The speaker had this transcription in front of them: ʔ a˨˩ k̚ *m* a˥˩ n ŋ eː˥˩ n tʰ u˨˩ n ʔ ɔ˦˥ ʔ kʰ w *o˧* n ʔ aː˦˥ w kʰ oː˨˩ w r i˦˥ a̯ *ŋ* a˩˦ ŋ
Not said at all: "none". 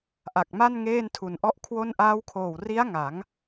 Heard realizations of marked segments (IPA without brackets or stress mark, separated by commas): m, o˥˩, ŋ